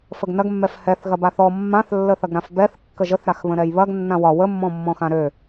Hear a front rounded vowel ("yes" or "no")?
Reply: yes